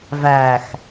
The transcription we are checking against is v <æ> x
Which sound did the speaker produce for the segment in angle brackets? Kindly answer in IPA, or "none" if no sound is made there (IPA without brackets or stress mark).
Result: æ